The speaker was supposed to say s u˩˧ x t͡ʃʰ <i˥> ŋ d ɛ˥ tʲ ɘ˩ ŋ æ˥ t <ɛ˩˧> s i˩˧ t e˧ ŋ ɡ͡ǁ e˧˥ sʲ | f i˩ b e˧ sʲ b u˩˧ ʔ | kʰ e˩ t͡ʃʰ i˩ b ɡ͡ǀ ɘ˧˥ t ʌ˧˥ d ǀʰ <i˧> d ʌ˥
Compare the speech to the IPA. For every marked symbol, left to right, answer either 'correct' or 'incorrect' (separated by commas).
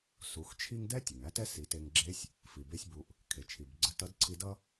correct, incorrect, correct